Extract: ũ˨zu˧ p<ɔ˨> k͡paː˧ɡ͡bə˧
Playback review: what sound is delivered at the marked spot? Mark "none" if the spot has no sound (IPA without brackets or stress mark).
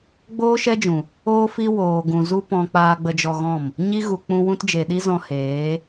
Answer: ɔ̃˨